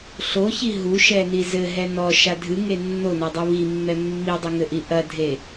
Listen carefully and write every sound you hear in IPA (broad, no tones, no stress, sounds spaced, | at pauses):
ɬ o ç i ɦ u ʃ ɛ n i z ɘ ɦ ɛ n ɔ ʃ a dʱ ɨ ŋ e nː o n ɔ dˤ u β i mː ɛ mː i dˤ i ŋ ɘ ʔ i ʔ ɐ dʱ e